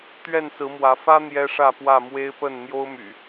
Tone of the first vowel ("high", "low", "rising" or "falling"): falling